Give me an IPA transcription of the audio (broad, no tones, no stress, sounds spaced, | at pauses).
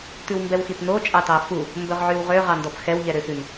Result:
t ʉ w m b ɛ w x i t n o t͡ʃʼ ɑ t ɑ f u | m b ɵ ʁ ʕ y w ʁ ø ʁ ɑ n d ɔ b x ɛ w ʎ ɛ ɾ ø s ʉ n